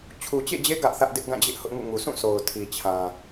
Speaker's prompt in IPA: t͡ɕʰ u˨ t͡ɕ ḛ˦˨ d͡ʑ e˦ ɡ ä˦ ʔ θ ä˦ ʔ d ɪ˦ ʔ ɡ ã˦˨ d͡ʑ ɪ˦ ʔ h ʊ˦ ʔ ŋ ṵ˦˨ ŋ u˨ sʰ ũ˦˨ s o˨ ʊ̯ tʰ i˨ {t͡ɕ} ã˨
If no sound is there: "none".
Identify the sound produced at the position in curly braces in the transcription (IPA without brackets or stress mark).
t͡ɕʰ